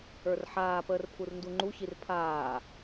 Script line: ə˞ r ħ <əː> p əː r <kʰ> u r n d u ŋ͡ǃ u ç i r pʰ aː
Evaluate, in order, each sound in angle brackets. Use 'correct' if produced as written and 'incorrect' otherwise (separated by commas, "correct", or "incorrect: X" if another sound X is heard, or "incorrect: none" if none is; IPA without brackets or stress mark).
incorrect: aː, incorrect: pʰ